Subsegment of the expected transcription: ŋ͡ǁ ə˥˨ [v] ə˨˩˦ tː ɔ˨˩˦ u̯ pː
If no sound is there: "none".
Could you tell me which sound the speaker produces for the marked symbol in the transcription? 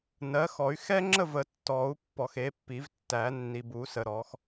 v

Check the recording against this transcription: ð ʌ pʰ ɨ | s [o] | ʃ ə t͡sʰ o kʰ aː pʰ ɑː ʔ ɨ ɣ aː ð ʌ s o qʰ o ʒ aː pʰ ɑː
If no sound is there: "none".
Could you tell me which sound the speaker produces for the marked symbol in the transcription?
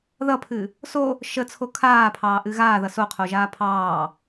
o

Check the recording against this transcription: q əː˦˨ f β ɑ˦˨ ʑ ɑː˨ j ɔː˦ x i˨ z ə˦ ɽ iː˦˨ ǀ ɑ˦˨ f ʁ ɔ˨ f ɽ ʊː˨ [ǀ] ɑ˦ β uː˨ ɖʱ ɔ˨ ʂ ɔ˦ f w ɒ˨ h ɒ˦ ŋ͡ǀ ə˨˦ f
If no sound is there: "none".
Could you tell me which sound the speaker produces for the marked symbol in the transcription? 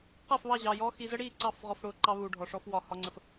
ǃ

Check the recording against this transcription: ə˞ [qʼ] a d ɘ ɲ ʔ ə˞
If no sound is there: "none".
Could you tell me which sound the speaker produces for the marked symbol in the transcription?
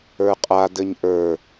qʼ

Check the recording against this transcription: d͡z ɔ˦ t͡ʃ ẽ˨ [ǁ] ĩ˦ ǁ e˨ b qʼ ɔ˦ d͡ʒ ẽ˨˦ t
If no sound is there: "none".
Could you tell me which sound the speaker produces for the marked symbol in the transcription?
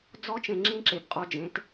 ŋ͡ǁ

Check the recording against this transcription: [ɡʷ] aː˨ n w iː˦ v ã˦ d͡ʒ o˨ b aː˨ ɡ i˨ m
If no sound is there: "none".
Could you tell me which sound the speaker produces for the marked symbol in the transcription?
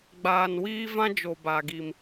ɡ͡b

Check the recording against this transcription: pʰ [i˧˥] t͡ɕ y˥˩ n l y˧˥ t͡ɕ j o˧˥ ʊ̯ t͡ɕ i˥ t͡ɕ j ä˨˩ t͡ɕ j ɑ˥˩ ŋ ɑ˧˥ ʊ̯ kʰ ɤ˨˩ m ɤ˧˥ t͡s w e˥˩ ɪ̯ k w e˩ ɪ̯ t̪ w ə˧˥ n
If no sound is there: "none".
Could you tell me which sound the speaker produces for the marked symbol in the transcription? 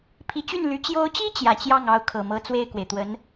i˧˥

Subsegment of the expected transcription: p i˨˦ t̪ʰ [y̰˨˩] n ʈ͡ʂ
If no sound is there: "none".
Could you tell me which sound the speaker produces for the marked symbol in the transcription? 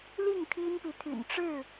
y̰˨˩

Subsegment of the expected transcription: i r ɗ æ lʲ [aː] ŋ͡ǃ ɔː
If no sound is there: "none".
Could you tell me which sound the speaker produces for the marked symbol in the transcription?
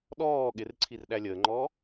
əː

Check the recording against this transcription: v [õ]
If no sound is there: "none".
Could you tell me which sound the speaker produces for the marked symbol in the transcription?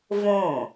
õ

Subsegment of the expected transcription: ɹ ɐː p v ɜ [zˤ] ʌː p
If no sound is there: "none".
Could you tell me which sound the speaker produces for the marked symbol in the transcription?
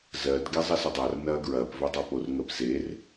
dˤ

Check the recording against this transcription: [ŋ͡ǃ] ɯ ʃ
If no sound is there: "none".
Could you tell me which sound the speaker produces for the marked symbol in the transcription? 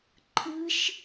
ǃʰ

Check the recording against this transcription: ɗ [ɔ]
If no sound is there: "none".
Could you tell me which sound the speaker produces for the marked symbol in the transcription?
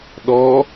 ɔ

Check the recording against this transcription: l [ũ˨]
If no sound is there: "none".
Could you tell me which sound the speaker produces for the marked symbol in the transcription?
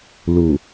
u˨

